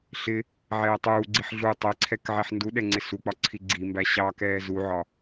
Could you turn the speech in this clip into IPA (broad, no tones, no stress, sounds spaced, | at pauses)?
ɬ ɪ | ʕ ɛː tˤ uː ɡ͡ǀ i ħ ɮ u tˤ ɛ ǀʰ ɛ k ʕ ɛ ħ n d u ɗ ɛ ŋ͡ǀ ɪ s u k͡p ɒ ǀʰ i ɡ͡ǀ i m b æ ɕ ɑ k ɛː z u ʕ ɒ